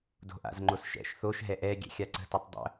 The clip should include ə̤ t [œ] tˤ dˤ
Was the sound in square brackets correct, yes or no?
yes